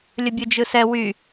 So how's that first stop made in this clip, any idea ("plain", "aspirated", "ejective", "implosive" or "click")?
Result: plain